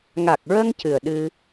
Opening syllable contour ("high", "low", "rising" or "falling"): low